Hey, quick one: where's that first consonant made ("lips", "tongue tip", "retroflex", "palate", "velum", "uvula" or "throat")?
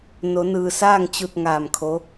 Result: tongue tip